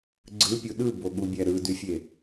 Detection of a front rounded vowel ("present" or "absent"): present